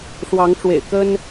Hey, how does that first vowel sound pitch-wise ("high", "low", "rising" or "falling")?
rising